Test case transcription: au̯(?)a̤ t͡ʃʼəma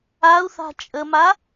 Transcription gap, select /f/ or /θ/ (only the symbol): θ